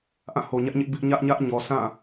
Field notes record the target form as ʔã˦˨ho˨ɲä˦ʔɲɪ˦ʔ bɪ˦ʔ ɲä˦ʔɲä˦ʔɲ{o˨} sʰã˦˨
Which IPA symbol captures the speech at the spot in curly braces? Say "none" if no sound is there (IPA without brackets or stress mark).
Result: ɔ˨